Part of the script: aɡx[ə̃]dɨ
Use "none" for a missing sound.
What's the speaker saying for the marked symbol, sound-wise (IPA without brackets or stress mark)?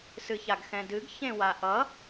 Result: ɛ̃